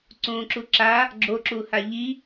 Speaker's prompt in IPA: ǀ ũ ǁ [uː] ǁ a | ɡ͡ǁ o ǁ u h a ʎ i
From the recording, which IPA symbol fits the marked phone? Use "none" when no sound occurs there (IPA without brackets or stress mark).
u